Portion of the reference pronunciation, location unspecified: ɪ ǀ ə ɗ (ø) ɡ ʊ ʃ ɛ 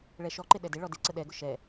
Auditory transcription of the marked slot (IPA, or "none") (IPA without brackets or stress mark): ɛ